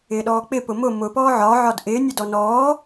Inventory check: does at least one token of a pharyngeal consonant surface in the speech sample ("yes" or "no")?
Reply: yes